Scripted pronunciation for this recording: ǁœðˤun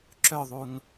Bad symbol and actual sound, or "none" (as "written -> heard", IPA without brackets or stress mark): none